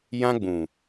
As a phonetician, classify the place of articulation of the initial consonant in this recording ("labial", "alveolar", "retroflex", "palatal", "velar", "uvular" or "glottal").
palatal